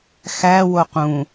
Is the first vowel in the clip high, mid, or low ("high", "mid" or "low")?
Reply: low